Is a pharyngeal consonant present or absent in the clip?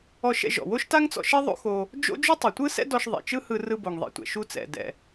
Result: absent